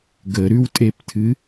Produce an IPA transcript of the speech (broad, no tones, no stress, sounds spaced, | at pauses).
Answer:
ɡ ə ɾ ʉ w tʼ e p tʰ ɨ